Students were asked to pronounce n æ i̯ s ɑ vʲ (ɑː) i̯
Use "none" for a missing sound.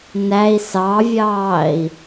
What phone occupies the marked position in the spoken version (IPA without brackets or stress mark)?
ɑː